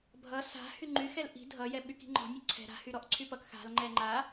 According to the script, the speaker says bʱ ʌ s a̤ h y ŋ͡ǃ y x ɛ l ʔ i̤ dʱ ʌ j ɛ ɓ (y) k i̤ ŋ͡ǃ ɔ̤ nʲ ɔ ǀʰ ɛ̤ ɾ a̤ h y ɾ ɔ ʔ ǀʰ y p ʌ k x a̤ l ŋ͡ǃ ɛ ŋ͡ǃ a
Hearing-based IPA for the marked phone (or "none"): y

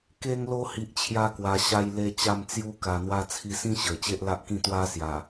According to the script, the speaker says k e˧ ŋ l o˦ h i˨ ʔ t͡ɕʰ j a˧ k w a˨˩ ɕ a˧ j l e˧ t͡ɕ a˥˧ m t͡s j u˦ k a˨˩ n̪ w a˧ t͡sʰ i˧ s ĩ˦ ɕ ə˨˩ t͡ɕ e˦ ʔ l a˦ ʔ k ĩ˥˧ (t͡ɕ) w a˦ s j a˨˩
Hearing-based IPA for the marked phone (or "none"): t̪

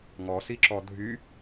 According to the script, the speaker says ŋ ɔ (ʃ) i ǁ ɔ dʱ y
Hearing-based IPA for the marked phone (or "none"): s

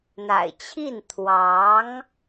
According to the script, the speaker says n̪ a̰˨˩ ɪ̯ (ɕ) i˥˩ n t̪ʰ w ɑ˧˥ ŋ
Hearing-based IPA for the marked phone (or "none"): t͡ɕʰ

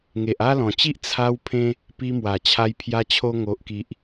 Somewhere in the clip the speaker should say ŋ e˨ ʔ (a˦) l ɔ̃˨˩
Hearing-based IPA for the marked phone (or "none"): a˦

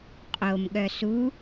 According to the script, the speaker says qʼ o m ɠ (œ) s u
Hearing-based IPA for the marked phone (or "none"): œ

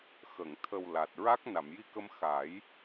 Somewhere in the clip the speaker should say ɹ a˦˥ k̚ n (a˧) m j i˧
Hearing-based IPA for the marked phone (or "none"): a˨˩˨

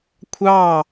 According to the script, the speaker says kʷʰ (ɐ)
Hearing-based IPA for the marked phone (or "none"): ɑ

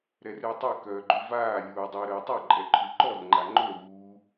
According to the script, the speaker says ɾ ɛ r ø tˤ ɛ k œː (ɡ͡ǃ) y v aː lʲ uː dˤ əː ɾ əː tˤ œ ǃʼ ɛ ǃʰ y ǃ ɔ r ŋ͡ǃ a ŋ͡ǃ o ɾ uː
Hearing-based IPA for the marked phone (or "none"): ɡ͡ǃ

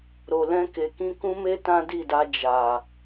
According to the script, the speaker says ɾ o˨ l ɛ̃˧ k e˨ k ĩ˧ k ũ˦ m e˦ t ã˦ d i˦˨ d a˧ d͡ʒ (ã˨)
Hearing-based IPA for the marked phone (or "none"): a˨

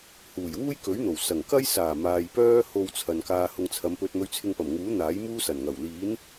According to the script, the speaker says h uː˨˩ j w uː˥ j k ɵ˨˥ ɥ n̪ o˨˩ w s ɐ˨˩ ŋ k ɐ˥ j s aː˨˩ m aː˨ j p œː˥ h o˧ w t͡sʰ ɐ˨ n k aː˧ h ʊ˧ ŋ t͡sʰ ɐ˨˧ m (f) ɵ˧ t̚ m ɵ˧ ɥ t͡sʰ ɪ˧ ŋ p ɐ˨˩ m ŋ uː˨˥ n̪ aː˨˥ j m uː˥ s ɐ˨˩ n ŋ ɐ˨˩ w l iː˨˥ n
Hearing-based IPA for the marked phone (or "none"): p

